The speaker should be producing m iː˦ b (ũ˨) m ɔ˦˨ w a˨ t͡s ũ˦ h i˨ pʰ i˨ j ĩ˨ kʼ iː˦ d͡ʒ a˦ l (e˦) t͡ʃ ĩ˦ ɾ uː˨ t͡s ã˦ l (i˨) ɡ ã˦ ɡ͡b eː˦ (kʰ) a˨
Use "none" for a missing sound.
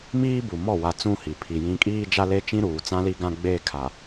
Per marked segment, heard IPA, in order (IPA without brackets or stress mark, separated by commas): u˨, e˦, i˦, kʰ